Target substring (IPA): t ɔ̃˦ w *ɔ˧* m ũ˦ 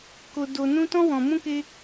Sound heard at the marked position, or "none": ɔ̃˧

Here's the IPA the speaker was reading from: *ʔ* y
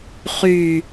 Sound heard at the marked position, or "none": χ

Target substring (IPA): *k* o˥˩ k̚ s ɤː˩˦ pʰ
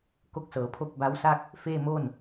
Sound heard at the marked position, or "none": k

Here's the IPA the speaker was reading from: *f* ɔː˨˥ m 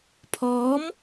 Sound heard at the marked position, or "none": pʰ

